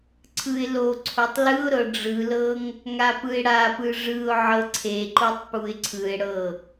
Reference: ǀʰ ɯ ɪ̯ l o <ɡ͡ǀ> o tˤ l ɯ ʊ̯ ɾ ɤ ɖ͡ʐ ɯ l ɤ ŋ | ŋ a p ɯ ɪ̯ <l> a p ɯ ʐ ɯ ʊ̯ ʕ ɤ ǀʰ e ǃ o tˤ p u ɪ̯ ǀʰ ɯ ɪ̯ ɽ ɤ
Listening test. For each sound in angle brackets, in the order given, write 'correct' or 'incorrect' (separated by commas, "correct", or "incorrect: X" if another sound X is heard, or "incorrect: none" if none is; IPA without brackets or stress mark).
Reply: incorrect: ǀʰ, incorrect: ɽ